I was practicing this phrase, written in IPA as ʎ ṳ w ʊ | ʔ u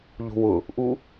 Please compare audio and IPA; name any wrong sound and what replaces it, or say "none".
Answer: none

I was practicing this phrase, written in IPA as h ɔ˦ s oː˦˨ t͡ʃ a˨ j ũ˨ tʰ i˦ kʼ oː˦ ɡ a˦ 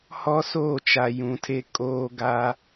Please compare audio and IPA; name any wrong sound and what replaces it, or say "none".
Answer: i˦ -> e˦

